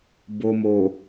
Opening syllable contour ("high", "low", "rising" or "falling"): low